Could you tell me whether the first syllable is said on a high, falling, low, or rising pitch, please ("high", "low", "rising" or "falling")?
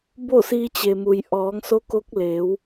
falling